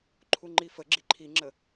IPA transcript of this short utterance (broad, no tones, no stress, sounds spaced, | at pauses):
ǃʰ u ŋ͡ǃ i f ə ɡ͡ǁ i ǃʰ i ŋ͡ǁ ə